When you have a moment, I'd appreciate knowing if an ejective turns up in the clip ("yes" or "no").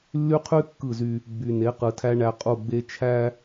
yes